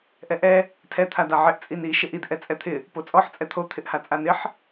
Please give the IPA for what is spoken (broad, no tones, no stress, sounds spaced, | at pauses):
ʔ ɛ ʔ ɛ | tʰ ɛ t̪ʰ a d a ʕ ɪ ʔ t͡sʼ i n i ʃ ɪ ʔ i d ʔ ɛ t͡sʼ ɛ t̪ʰ ɪ | p o t͡sʼ ɔ ħ t͡sʼ ɛ t̪ʰ o t̪ʰ ɪ ʔ h a t͡sʼ a n ɪ ħ